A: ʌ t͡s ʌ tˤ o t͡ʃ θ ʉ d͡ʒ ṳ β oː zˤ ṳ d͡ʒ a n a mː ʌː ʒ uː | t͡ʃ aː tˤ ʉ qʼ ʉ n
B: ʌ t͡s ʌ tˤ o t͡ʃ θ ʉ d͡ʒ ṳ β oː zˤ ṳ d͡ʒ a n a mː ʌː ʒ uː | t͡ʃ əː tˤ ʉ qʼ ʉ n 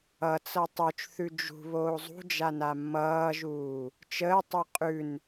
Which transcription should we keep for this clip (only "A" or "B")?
B